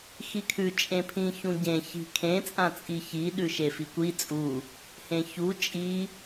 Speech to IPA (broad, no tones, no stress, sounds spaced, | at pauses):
x i kʰ ʉ t͡ʃʼ ẽ pʰ ĩ ç ũ ɟ ẽ ç i̤ kʰ ẽ t͡sʼ ã t͡sʼ i ç i ɗ ʉ ʃ e f i kʷ i t͡sʼ u | h ẽ ç u t͡ʃʼ i